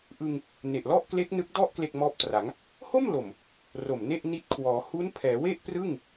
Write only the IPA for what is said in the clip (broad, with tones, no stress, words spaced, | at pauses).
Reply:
ʔɯ˧ŋ | ne˨˩ʔlɔ˥˩ʔ kle˦˥k̚nɯ˦˥k̚dɔ˥˩ʔ kle˥˩k̚mɔː˦˥p̚tra˩˦ŋ | ho˥˩m lo˨˩m | ro˨˩mne˥˩ʔ ni˦˥t̚kʰwɔː˩˦ hu˦˥npʰɛː˩˦we˥˩ʔ prɯ˥˩ŋ